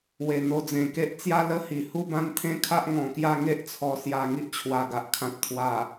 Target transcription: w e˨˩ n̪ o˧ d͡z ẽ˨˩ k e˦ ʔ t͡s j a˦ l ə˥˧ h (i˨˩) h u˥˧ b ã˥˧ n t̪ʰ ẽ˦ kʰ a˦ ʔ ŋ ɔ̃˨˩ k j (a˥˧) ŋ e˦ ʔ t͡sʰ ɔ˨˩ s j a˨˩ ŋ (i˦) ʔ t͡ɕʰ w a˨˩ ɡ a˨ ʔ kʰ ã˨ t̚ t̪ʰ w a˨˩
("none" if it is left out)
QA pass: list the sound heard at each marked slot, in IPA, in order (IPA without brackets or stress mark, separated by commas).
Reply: i˨˩, a˥˧, i˦